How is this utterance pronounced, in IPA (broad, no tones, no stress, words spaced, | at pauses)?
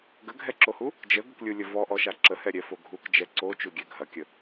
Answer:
ɡəɡʱɛǁohu | d͡ʒəɡəklʲulʲə vɔʔɔʃa ǁəhɛɾʲɛfo ɡʱukd͡ʒɛ ǀot͡ʃuɡʲɛ ɡʱɐkʲə